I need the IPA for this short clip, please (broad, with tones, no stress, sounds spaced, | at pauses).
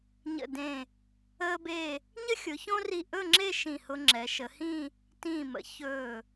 ɲ ə̰˧˩ d ẽ˧˩ | əː˥ b e˥˧ | ɲ ə˥ xʲ ʊ˩˧ ç õ˥ r i˧˩ ʔ ɵ˥˧ ŋ͡ǁ e˥˧ ʃ ĩ˧˩ h ʊ˧ ŋ͡ǁ ɛ˩˧ ʃ ə˩˧ h ĩ˥˧ | t ĩː˧˩ m ə̰˩˧ ç ɵː˧˩